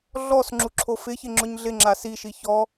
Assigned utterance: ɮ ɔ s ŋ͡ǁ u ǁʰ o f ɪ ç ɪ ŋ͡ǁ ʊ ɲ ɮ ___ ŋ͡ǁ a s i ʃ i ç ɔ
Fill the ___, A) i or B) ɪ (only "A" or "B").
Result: B